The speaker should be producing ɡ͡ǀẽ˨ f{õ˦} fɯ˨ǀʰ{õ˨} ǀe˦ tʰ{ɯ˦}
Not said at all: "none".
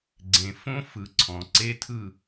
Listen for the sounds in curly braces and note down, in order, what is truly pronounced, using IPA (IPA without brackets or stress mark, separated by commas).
õ˦, ɔ̃˨, ɯ˦˨